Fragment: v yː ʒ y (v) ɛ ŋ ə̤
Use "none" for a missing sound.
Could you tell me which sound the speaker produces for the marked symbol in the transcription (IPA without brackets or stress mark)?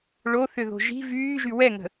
w